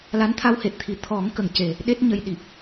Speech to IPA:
l a˧˥ n t̪ʰ a˧ w h e˨˩ t̚ t̪ʰ i˨˩˨ t̪ʰ ɔ˨˩˦ ŋ k ə˨˩˨ ŋ c e˨˩ | ɗ e˦˥ t̚ ɲ ə˧ j ɗ i˨˩ p̚

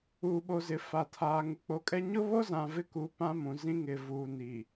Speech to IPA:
uː˨ ɓ o˨ z ɪ˨ f a˨ tʰ aː˨ ŋ u˨ k͡p o˨ kʼ ɛ˦ ɲ ʊ˦ β o˦ z ã˨ v ɪ˦ k u˨˦ p ã˦ m ũ˨ z ĩ˦ ŋ ɪ˨ v uː˨ n i˨

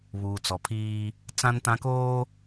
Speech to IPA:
β uː˨ t͡s ɔ˨ pʰ iː˦ | t͡s ã˦ n t ã˦ k oː˦

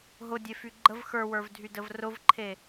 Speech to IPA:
ɦ ʊ dʲ e f y ɡ͡ǃ ə v x ə˞ w ə˞ v dʱ y d ə v r ʊ v ǃʰ e

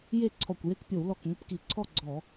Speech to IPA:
j e˥˨ ǀʰ ɔ˧˩ kʷ j e˥˨ k pʲ o˧˩˧ w l ɔ˧˩ k ŋʷ ɪ˥˨ p k i˧˩˧ ǀʰ ɔ˥˨ ɡ͡ǀ ɔ˧˩˧

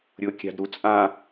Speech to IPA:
ɾʲ ʊ kʲ a̤ d ɾ u t͡sʼ ã

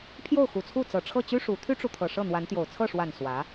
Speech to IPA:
pʰ j o˥˩ ʊ̯ x u˨˩ t͡sʰ u˥˩ t͡s ɤ˨˩ ʈ͡ʂʰ ɤ˥˩ t͡ɕ y˥ ʂ u˧˥ t̪ʰ y˥ ʈ͡ʂ u˨ t̪ʰ ɤ˨˩ ʂ ɤ˥˩ n̪ w a˧˥ n t̪ j o˨˩ ʊ̯ t͡sʰ ɤ˥˩ ʂ w a˨˩ n s w ä˧˥

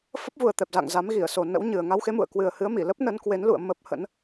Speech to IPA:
f ə˦˥ p̚ v u˨˩ ə̯ t̪ ɛ˨˩ p̚ z a̰˧˨ ŋ z a˨˦ m ɣ i˧˩ ə̯ s o˨˩ n ə̰˧˥ w ɲ ɨ˨˩ ə̯ ŋ a˧ w x e˨˦ m ṵ˧˨ ə̯ k w ɨ˨˩ ə̯ h ɨ˨˦ ə̯ m i˧˩ l ə˦˥ p̚ n ə˨˦ n k w e˨˦ n l ṵ˧˨ ə̯ m ə˦˥ p̚ h ə̰˧˥ n

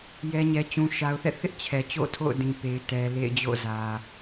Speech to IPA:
j ɛ˨ ɲ ɛ˨ t͡ɕ ũ˨ ʃ a˨ ʊ̯ θ ɛ̰˦˨ θ ɪ˦ ʔ t͡ɕʰ ɛ˨ t͡ɕ o̰˦˨ tʰ o̰˦˨ ʊ̯ d ĩ˨ p e˨ ɪ̯ t ɛ˨ l ḛ˦˨ ɪ̯ d͡ʑ o̰˦˨ z ä˨

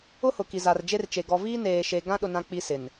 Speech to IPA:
ʊ˦ h ʊ˨ k i˨ z a˨ r d͡ʒ e˦ r t͡ʃ e˨ ɡ ɔ˨ v iː˦ n eː˨ ʃ e˨ ɡ ã˦ ɗ ʊ˦ n ã˦ k͡p i˦ s ɪ˨ n

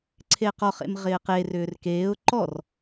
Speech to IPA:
ǀʰ e q ɔ χ ḛ m ʁ ɪː q e r ʏː r k eː ʊ̯ ǃ ɔ r

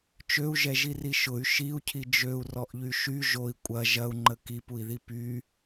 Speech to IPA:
t͡ʃ ø u̯ ʒ ɛ ʒ i r i ʃ ʊ y̯ ʃ i u̯ cʰ i d͡ʒ ø u̯ r ɔ ʔ ʎ y ʃ y ʒ o i̯ kʷʼ ɐ ʒ ɐ u̯ ŋ͡ǃ ə k i p u i̯ ð i p y

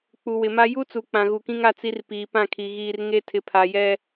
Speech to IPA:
k͡p u˨ w ɪ˨ m a˦ j u˦ t͡s u˨ k͡p ã˨ ɣ u˨ k ĩ˦ ŋ a˦ t͡s i˦ r p iː˨ p ã˦˨ kʰ i˨ ɣ iː˨ r ŋ e˦ tʰ ɪ˨ pʰ a˨ j ɛ˦

